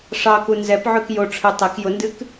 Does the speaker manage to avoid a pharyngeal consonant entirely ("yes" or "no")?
no